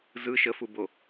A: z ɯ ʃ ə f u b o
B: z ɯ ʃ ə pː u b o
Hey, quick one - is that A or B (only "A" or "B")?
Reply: A